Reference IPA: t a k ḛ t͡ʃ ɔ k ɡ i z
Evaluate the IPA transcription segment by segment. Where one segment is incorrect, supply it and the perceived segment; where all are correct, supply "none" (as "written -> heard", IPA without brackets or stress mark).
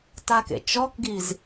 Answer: none